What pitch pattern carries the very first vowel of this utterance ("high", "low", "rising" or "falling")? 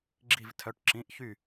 falling